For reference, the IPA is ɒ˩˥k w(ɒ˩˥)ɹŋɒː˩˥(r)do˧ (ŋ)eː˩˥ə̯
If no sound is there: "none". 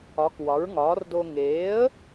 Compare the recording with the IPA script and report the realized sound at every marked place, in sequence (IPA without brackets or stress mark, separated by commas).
ɒ˩˥, r, ŋ